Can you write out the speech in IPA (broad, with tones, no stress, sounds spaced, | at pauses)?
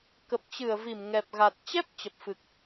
k ə˨˩ p̚ t͡ɕ ɨ˧˩ ə̯ v i˧˩ m ŋ ɛ˨˩ p̚ ɣ a˨˩ t̚ t͡ɕ ɛ˦˥ p̚ t͡ɕ ə˨˩ p̚ f ɨ˨˩ k̚